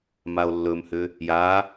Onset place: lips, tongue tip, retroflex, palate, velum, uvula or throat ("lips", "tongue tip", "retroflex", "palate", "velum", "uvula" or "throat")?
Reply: lips